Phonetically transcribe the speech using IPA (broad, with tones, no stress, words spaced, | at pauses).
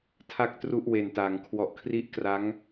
tʰa˥˩k̚tru˥˩ʔwe˨˩nta˩˦ŋ kʰwɔ˨˩ʔkʰri˦˥ʔkra˦˥ŋ